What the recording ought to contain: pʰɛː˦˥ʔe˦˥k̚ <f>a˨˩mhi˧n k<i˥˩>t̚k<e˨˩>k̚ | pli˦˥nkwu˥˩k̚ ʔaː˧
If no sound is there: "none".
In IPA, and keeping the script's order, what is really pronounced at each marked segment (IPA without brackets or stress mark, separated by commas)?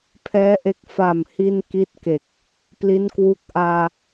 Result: f, i˥˩, e˨˩